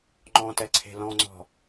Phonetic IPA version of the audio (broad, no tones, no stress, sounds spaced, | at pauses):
ŋ͡ǃ ɔ̃ t ɛ ǀʰ e̤ l ɔ̃ ŋ͡ǀ ɔ̤